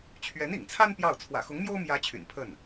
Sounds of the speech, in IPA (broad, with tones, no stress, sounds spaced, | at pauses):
t͡ɕʰ ɥ ɛ˧˥ n ḭ˨˩ ŋ t͡sʰ a˥ n p j ɑ˥˩ ʊ̯ t͡sʰ w ä̰˨˩ x ʊ˧˥ ŋ m j o˥ ʊ̯ m j ä˧˥ t͡ɕʰ y̰˨˩ n pʰ ə˥˩ n